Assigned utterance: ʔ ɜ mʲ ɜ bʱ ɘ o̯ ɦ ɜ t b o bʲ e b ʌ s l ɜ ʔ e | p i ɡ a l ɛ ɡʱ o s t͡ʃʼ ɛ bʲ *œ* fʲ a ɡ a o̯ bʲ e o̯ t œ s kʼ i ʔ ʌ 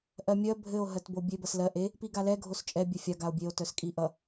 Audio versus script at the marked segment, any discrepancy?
no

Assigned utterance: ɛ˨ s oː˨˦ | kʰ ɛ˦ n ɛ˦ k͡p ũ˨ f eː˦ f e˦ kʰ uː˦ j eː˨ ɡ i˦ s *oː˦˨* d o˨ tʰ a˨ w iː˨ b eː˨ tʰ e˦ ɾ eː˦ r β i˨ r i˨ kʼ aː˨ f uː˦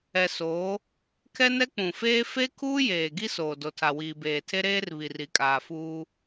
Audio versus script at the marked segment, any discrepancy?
yes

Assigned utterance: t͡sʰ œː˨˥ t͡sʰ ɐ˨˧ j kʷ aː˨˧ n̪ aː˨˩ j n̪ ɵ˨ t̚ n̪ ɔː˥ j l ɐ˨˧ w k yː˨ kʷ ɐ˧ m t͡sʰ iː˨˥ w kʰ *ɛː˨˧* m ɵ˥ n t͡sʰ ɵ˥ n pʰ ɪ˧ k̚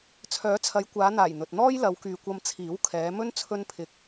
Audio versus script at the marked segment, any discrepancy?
no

